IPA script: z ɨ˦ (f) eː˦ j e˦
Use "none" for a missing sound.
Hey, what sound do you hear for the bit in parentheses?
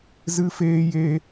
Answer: f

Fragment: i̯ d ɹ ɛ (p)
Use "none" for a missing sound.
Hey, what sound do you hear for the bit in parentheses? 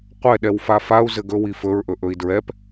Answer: p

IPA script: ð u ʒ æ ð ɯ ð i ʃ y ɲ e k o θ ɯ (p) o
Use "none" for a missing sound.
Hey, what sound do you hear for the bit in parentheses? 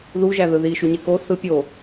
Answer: pʲ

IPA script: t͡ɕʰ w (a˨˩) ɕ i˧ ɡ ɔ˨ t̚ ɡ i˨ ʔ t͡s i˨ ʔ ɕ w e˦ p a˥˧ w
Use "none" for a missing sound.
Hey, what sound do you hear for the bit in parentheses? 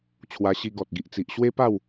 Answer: a˧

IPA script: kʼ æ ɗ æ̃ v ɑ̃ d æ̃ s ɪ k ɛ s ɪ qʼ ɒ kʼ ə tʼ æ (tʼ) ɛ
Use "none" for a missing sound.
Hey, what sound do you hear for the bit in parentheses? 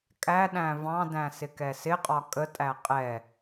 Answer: qʼ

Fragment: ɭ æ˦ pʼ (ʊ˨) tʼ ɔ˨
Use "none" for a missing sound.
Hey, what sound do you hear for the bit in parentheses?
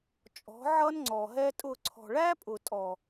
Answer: ʊ˨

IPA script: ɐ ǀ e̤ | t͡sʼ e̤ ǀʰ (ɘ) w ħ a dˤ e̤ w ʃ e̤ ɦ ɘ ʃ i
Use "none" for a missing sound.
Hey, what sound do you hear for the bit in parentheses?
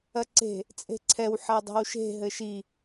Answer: ɛ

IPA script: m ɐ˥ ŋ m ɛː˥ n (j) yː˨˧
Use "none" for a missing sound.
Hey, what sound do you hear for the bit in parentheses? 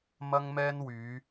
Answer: w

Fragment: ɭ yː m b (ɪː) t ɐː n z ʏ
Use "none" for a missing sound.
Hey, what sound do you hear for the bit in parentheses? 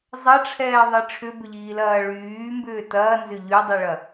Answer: ʏː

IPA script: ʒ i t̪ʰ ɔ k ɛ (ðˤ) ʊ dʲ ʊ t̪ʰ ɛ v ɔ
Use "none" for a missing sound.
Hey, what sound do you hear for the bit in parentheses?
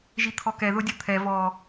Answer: ð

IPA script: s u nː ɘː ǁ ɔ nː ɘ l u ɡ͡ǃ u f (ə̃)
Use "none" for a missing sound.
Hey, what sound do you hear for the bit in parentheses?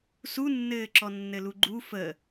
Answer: ə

